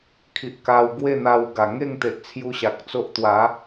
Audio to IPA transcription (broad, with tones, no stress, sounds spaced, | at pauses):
kʰ i˨ ʔ k a˧ w ɡ w e˥˧ n̪ a˧ w ɡ a˨˩ ŋ e˥˧ ŋ t̪ e˨ ʔ t͡sʰ j u˧ ɕ a˨ k̚ t͡s o˦ ʔ t̪ w a˨˦